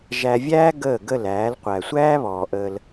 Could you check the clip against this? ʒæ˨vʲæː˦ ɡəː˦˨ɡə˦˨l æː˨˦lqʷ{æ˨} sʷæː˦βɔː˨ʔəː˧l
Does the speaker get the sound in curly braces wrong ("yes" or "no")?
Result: no